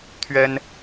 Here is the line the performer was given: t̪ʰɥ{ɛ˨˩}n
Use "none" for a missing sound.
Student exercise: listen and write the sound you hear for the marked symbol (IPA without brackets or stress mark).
ɛ˦